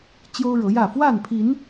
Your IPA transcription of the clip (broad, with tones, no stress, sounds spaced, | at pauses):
t͡ɕ j o˦ ʊ̯ ɻ ɤ˨˦ j ä˥˨ f w a˥˨ n pʰ i˨˦ n